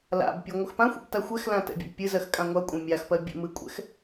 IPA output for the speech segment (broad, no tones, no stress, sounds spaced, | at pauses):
l a̰ b pʲ e ŋʷ ɨ x p ã xʷ ḛ b t a xʷ ɛ x l ã t ɛ̰ bʲ a̰ b pʲ ɨ z ɜ x kʼ ã ŋʷ a kʷʼ ẽ mʲ a x p ɜ bʲ ɛ̰ m ɨ kʷʼ ɛ̰ x